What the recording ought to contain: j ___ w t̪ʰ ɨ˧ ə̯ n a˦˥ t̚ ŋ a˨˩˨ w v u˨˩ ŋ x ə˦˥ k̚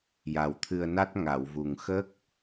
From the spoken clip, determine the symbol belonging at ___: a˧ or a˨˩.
a˨˩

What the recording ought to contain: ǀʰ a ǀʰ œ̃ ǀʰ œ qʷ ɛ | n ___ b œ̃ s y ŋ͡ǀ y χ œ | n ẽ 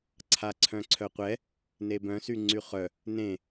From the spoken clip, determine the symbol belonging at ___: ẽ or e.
e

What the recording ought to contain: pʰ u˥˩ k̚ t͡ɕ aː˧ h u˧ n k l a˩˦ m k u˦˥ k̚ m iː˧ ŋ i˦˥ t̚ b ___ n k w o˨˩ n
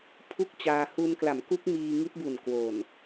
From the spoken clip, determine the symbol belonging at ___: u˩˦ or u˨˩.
u˨˩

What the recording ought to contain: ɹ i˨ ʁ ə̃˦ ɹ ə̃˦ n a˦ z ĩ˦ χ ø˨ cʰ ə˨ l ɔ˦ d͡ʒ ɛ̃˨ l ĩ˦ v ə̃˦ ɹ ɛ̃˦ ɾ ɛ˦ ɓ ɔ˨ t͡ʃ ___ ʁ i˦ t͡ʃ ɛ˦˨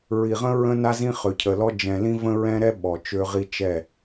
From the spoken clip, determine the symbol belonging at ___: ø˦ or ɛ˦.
ø˦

